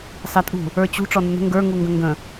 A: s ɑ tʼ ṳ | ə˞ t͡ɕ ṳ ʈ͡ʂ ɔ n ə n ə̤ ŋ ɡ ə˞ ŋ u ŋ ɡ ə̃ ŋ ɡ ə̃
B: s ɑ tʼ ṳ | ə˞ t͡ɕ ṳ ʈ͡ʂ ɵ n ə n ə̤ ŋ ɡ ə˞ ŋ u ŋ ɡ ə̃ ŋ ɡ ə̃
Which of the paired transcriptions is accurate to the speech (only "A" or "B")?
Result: A